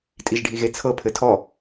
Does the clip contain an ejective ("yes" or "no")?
yes